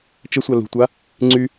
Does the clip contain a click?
yes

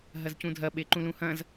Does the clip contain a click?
yes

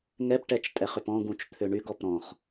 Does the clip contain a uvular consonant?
yes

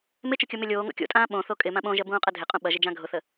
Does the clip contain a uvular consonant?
yes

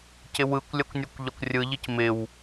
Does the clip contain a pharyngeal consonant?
no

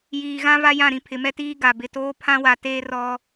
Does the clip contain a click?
no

